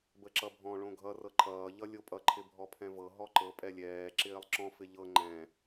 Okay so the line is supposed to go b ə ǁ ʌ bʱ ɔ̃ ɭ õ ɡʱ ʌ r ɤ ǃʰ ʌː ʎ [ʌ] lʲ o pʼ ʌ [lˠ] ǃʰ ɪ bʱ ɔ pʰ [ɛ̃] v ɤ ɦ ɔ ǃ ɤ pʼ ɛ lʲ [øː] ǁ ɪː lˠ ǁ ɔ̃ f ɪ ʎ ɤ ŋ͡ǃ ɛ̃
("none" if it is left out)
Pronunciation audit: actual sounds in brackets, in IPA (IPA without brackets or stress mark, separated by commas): ʌ, none, ɛ̃, ɛː